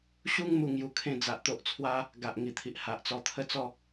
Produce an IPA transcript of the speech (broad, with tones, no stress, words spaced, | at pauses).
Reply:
ɕu˦ŋ mu˦ŋju˧kʰẽ˥˧ d͡za˨ʔt̪o˦ʔt͡sʰwa˦ | ɡa˨ʔŋi˨˩t̪ʰi˨ʔ ha˨ʔt͡sɔ˧t̪ʰə˥˧t͡sɔ˥˧